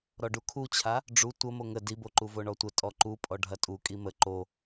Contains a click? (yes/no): yes